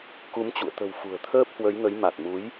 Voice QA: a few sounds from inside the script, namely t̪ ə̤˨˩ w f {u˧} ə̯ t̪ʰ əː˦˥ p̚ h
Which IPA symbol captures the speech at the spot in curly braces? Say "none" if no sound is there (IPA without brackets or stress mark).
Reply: ṳ˨˩